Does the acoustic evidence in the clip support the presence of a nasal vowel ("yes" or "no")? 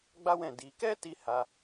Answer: yes